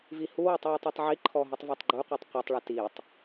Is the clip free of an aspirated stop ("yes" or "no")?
no